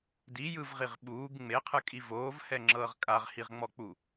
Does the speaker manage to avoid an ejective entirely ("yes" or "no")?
no